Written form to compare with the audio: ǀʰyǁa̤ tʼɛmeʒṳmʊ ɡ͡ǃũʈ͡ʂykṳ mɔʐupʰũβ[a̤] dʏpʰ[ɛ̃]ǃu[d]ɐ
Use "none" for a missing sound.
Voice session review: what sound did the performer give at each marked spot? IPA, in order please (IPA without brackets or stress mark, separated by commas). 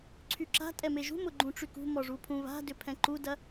a̤, ɛ̃, d